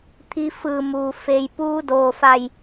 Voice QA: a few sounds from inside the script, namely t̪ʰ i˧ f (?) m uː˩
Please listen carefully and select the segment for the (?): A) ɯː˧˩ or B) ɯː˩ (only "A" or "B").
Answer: A